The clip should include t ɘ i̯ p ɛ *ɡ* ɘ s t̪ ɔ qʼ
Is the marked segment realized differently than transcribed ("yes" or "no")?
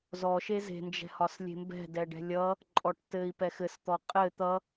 yes